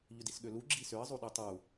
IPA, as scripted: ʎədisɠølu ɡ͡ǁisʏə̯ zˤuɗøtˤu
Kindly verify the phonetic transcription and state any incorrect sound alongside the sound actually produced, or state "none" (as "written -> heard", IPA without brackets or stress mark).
ə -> ʏ